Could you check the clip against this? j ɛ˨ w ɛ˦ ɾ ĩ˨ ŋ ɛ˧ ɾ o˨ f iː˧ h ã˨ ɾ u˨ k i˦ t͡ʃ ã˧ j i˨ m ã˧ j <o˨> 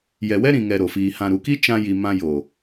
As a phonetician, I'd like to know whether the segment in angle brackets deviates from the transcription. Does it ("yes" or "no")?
no